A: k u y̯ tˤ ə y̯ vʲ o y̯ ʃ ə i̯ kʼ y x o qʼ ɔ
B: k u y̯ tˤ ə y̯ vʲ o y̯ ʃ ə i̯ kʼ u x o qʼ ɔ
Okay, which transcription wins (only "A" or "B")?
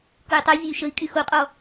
A